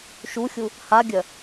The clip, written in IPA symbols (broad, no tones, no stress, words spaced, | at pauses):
ʃuxʲu | haɡʲœ